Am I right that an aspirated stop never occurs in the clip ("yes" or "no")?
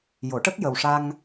yes